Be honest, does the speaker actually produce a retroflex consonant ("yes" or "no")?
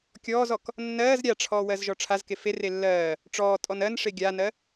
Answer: yes